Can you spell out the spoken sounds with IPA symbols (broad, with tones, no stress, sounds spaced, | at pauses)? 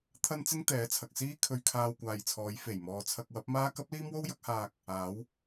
t̪ʰ ɐ˥ n t͡s ɪ˥ ŋ t̪ ɛː˨˥ t͡sʰ ɐ˨ k̚ s iː˥ kʰ ɵ˧ ɥ kʰ aː˧ w kʷ aː˨ j t͡sʰ ɔː˨˧ j f e˨˩ j m ɔː˨ t͡sʰ ɐ˧ k̚ w ɐ˨˥ p̚ m aː˥ k ɐ˥ p̚ l iː˥ m w o˥ w j ɐ˨˥ k̚ h aː˧ k̚ | aː˨˥ w